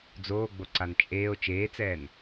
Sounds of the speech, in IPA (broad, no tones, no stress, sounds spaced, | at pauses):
d͡z oː ɡ͡b o ǀ a n t͡ʃʼ eː o̯ t͡ʃ eː t͡s ɛː n